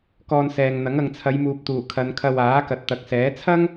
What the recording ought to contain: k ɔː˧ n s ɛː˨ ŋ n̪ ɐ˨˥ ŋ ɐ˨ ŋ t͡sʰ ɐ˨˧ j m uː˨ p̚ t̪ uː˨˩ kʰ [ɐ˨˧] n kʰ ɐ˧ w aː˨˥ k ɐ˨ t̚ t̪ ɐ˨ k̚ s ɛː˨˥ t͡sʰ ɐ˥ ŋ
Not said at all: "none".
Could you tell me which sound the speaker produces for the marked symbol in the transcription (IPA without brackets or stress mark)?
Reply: ɐ˨˧